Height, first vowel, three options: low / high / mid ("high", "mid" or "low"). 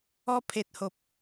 mid